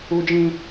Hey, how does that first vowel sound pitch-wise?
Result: high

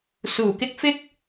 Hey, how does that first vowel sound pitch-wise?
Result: low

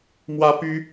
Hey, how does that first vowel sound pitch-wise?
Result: high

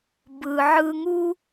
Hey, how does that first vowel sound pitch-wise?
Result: low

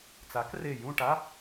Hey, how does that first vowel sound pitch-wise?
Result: rising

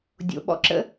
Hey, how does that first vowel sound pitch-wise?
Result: low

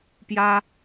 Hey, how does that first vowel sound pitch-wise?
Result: high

